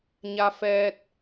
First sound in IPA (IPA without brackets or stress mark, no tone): ɲ